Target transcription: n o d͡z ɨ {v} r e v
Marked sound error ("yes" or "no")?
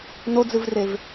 no